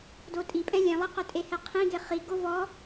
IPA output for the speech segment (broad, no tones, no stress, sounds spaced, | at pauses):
d o tʼ i pʼ ɛ̃ lʲ ɛ̃ lˠ i q œ tʼ e h ɛ qʰ ĩ ɡ e χ i ɡ o v ɔ